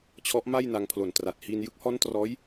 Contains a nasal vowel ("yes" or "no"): no